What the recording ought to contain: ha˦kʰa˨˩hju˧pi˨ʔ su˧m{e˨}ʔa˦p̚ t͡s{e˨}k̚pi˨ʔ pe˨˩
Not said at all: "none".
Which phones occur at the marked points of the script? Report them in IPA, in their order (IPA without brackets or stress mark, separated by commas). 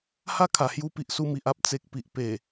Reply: i˨, e˨